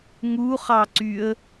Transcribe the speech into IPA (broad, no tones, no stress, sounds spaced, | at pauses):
ŋ u χ ɑ ǀ y ə̯